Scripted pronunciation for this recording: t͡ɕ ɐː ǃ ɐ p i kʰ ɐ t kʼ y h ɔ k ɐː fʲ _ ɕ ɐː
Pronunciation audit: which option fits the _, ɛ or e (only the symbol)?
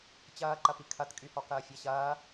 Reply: ɛ